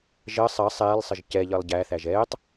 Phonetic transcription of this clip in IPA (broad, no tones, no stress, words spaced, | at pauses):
ʒɜ sˤɜ sˤɛːlˠsˤɘʒ cɛ ʎɜlˠɟæθæʒ ɛːtˤ